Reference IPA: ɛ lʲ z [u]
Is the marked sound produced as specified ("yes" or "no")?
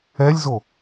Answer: no